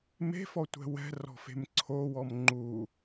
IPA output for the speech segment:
m e̤ f ɔ tʷ ɛ̤ w ɛ̤ r ɔ̤ f e̤ m ǀʰ o w ɔ m ŋ͡ǃ u

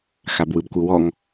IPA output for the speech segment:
x a b w ɯ b kʷ ɯ w ɔ ŋ

